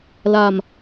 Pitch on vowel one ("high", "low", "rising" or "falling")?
low